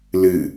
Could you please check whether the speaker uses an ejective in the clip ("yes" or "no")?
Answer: no